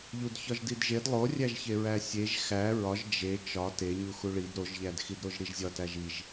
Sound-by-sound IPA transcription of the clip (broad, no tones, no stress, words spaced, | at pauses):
ʎudçɒʒdidʒed lˠorʲæʒçeɹæ sʲeʒ xæ ɹɒʒ d͡ʒe t͡ʃɒ teɲu xuɭid ɾoʒʎædxidɾoʒ ɾiʒzʲɒtæʒ iʒ